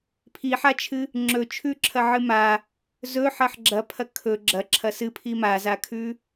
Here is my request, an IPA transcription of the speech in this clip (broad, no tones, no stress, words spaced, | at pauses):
pʰiħat͡ʃʰɨ | ŋ͡ǁɵt͡ʃʰʉǁʰɐʕɨ ma | zɵħɐħ ɡ͡ǁɐpʰɐ kʰɵ ɡ͡ǁɐǁʰɐ sɨpʰi mazakʰʉ